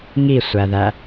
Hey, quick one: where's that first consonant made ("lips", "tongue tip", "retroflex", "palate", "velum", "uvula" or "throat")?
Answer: velum